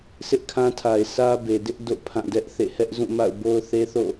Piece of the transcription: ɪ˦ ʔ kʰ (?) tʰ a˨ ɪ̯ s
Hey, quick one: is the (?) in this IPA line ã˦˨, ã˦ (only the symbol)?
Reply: ã˦